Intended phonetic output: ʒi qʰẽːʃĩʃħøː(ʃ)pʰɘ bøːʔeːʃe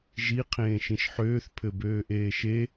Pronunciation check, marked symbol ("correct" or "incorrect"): incorrect